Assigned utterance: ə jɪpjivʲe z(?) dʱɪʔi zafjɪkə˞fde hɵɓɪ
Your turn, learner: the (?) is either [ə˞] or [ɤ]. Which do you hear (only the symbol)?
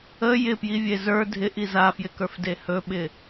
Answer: ə˞